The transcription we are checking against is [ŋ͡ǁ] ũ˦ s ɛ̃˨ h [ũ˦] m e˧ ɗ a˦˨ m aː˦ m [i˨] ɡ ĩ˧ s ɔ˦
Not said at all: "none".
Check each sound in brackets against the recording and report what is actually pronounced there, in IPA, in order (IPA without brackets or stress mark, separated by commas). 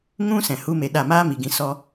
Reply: ŋ, u˦, i˨